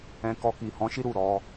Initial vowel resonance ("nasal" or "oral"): nasal